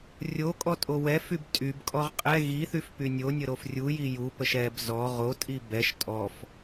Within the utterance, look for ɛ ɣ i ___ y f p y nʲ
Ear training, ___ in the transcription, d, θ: θ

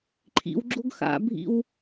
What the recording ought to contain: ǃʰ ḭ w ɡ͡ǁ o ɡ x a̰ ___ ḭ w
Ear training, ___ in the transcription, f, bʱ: bʱ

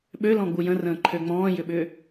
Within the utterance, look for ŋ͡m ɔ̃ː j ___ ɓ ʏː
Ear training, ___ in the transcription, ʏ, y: ʏ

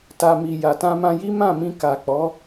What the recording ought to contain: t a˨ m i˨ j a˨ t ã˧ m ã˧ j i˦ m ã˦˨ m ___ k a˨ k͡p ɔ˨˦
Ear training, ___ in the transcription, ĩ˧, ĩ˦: ĩ˧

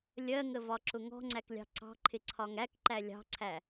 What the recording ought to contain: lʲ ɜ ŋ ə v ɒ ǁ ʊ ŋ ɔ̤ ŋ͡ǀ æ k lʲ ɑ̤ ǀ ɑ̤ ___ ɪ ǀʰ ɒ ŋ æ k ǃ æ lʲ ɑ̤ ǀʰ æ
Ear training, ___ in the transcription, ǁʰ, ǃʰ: ǃʰ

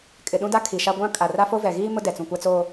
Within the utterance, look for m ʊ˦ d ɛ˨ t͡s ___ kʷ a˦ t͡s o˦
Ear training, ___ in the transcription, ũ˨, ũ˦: ũ˨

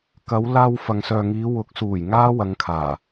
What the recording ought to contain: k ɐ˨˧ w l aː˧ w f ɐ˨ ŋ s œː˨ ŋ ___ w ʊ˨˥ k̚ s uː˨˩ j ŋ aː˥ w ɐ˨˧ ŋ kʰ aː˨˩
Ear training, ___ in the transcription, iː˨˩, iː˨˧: iː˨˧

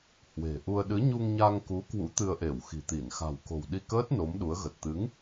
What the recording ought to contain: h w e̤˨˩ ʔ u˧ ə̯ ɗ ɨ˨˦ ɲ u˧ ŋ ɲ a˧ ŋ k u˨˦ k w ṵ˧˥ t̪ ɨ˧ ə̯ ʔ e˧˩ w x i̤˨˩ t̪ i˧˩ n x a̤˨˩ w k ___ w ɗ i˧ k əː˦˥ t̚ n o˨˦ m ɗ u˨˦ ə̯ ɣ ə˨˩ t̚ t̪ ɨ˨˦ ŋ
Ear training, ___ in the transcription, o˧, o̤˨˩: o̤˨˩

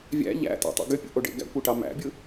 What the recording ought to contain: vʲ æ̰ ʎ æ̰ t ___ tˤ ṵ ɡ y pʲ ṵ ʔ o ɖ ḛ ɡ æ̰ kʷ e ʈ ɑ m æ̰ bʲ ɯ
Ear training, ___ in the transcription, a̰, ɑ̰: ɑ̰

